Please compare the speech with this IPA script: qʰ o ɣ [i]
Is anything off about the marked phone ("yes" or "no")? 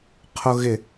yes